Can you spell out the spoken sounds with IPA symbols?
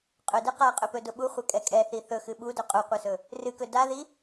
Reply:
qʼɵdɨ qaqʼɵpɵdʊ ɓuχʷɛkʼɛ kʼɛθi θɵxɨ ɓudɵ qʼuqʷɨsɵ | rɨkɵ daði

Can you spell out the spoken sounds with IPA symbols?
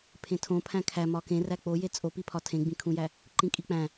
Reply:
pʰẽtʰõ pʰæ̃kʰæ mɒkẽ ræk͡poje t͡sʼopipʰɒ tʰẽɡ͡bĩkʰũjæ | ǃĩkʼik͡pæ̃

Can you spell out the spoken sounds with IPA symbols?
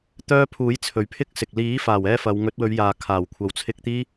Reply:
t̪œː˥ pʰuː˨˥j t͡sʰɵ˨ɥpʰɪ˥k̚sɪ˨k̚ liː˨˥faː˨˩wɛː˧ fɐ˨˧w ŋɵ˨˥t̚wɵ˨˧ɥjaː˨ kʰaː˨˩wkʷʰɐ˨˧wt͡sʰɪ˧k̚t̪iː˥

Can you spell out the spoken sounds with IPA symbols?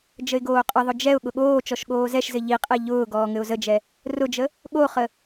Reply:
d͡ʒəɪ̯ɡoːqʼəðˤʊ d͡ʒɛʊ̯ ɠʊɠoːt͡ʃɔʃ ɠoːzɛʃzɘ ʎiqʼɛ ʎʊː ɡɔːŋɘʊ̯zəd͡ʒɛ | rʊd͡ʒə | ɠoχə

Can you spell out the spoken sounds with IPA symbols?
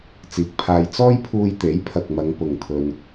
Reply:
t͡siː˨k̚pʰaː˧j t͡sɔː˥jpʰuː˧jt̪e˨˥j pʰɐ˨k̚mɐ˨˧ŋ pʊ˨ŋt̪ʰɵ˧n

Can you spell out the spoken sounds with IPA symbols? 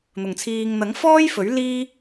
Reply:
n̪ʊ˨ŋt͡sʰiː˧ŋ n̪ɐ˨˥ŋfɔː˥jfɵ˨˥ɥ liː˥

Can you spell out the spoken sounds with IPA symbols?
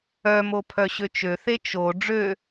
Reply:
œmo pʰœɕøt͡ʃøθe t͡ʃo ɖ͡ʐø

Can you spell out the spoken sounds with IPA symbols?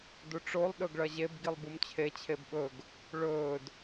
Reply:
duʈ͡ʂolˠ ɗɵɡɭɐʑeb ɡilˠbumt͡ɕʰe t͡ɕʰebɓɵɡ | ɭɵːd

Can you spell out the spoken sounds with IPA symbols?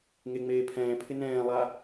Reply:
ŋeŋ͡meːpʰɛ̃ːpʰɪ nɛ̃ːlˠa

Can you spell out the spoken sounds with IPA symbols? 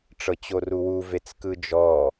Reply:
ʈ͡ʂɤt͡ɕoruwu vet͡skɯd͡ʒɔ

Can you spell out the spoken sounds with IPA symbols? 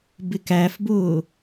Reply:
bɪkæfbʊː

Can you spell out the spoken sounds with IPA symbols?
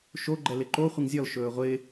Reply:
ʃoɡ͡ǃɛ lɪǃoχʷɪŋ zʲɔlʃɵː ʁʷɪː

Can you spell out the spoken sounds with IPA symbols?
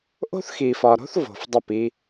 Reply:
ʔo̤˦θxi˨fɒ˨ɾo̤˦θ vo̤˨fdˤɐ˦˨p i˦

